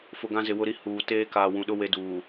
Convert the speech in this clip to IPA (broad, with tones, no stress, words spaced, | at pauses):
fʊ˨ɡã˦zɪ˨ wʊ˦ɾi˦ huː˨ teː˦kaː˨ wũ˨ɗʊ˦ we˦duː˨